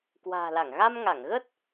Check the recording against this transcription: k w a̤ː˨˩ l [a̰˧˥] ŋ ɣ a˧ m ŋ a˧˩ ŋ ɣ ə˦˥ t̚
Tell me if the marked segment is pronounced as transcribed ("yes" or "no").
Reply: no